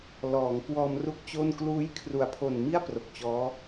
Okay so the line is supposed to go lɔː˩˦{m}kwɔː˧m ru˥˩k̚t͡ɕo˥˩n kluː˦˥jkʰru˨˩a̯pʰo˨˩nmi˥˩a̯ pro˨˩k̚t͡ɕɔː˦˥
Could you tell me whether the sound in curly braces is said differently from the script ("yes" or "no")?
yes